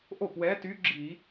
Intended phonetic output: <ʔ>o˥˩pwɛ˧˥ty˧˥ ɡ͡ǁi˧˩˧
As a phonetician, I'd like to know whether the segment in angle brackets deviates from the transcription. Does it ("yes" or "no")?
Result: no